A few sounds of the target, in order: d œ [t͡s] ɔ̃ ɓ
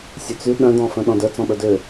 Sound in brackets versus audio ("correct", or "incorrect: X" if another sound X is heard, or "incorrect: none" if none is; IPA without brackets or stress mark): correct